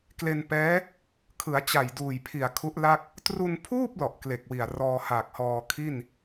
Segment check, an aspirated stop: present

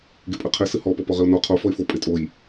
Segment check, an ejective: present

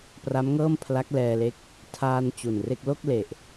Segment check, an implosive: absent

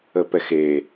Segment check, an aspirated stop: absent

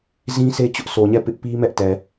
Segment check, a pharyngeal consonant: absent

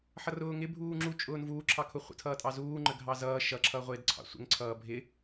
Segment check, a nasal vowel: absent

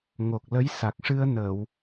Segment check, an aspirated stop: absent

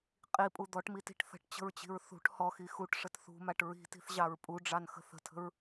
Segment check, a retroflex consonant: present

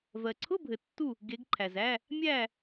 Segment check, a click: present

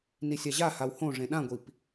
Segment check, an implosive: present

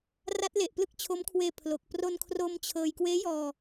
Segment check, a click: absent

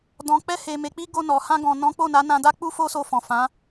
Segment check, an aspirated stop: absent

